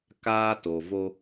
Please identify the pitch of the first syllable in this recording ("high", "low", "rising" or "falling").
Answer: high